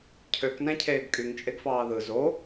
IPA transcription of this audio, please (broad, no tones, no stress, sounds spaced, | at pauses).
cʰ ø k n æ̃ cʰ eː ɡ kʼ y ŋ t͡ʃʼ e ɡ f ɑː ð ɯ z o